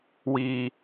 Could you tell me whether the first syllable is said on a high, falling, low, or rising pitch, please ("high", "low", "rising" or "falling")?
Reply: low